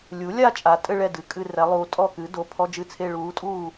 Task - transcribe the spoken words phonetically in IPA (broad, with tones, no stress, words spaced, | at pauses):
lʲu˩˥lʲa˥˧ t͡ʃʼa˩˥tʼɘ˥˧ɭɛ˥˩ dɨ˩˧˩kʼɨ˥˧rɛ˩˥lˠuː˩˥ tʼɔ˥˩kɨ˩˥ do˩˧˩pʰɔ˧˥˧d͡ʒɨ˥˩t͡sʰe˥˧ ɭuː˩˥tʼuː˥˩